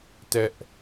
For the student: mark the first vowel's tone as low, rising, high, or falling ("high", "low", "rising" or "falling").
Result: high